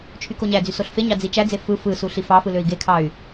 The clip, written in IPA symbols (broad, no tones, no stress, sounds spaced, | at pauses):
t͡ʃʰ y k o ɲ æ d͡z y s o ɬ f e ɲ ɑ d͡z i t͡ʃ æ d͡z e f ɯ f ɯ s u ɬ i f ɑ f ɯ l ø i̯ ɡ e kʰ ɑ y̯